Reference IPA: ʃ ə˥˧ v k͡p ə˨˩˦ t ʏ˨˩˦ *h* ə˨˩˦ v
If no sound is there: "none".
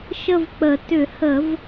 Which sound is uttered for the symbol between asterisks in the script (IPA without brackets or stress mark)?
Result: h